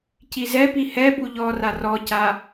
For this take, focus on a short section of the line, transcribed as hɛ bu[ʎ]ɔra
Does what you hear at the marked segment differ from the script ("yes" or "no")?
no